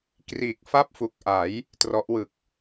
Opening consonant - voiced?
no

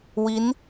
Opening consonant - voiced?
yes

